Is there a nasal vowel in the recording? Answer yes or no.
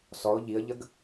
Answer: no